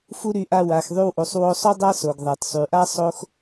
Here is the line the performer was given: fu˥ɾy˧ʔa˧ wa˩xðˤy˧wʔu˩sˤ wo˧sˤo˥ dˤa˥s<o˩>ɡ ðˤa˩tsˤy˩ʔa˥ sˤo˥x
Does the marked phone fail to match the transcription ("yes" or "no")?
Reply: no